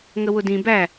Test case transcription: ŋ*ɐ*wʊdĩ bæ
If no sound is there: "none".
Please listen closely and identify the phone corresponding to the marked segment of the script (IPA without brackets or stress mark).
ə